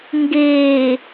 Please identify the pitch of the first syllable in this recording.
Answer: low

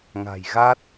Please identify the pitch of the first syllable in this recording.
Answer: low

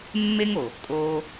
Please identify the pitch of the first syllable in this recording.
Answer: high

